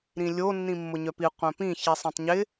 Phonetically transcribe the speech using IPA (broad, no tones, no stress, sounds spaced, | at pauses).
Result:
ɾ ĩ lʲ o nː ĩ mː ʊ ɲ œ p i qʷ œ̃ p ĩ ç i sˤ ĩ tˤ ɲ ɪ